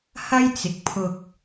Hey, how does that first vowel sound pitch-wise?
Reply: high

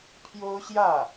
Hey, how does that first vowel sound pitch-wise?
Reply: high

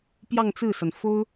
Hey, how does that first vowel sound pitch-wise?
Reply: falling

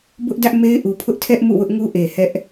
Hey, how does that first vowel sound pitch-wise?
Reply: high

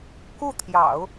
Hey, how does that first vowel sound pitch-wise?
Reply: falling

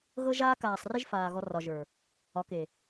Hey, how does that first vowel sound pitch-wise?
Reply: high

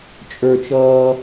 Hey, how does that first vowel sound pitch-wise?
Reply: high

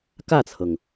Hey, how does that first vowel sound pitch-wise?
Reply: falling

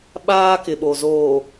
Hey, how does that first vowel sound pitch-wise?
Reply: high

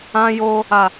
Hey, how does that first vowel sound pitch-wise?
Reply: high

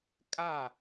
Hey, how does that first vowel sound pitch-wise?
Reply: falling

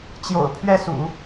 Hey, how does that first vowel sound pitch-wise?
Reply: low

